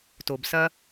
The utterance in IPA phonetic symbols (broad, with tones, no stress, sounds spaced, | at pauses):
t o˩ b s ɐ˥